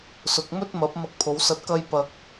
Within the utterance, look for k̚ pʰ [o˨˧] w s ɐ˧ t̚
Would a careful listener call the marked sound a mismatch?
no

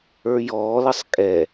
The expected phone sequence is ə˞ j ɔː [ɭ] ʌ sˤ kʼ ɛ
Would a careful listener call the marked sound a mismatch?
yes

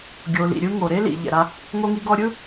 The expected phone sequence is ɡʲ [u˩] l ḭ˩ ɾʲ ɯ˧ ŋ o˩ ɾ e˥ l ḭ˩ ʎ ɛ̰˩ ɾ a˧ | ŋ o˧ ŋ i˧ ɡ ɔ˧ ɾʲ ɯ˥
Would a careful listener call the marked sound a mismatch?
yes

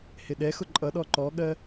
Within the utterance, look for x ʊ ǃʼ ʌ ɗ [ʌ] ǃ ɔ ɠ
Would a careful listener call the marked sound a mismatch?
yes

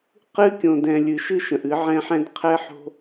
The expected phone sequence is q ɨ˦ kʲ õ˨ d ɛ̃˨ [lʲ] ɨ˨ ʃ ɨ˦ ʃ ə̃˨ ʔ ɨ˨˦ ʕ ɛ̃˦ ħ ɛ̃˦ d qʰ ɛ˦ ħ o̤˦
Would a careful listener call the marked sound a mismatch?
no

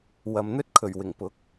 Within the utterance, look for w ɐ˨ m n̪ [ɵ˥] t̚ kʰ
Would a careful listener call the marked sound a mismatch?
no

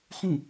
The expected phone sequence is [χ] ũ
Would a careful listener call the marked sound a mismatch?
no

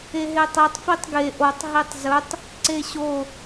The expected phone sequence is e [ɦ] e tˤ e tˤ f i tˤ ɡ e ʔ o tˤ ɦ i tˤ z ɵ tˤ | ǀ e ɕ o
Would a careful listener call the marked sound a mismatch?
no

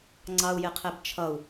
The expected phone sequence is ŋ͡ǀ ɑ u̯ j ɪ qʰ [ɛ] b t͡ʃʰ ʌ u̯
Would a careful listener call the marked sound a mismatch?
no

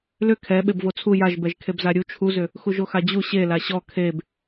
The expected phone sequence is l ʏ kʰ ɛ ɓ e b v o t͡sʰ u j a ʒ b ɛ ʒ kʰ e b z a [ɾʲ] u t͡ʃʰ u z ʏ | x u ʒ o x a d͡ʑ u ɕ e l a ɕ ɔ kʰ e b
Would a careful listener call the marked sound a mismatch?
no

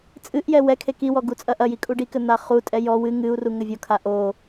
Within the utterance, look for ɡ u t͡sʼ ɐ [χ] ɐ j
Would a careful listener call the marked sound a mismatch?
yes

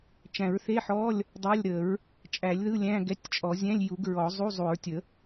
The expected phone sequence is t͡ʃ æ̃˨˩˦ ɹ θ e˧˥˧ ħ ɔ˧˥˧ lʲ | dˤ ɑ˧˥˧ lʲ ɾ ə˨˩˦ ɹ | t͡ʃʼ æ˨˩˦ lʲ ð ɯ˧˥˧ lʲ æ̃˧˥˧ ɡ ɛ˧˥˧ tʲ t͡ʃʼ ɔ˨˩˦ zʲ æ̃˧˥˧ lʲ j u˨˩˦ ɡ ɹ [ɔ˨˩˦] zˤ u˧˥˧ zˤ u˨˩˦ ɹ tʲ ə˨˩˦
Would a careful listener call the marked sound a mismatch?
no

